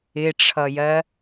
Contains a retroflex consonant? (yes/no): yes